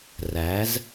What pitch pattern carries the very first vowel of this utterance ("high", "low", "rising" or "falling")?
rising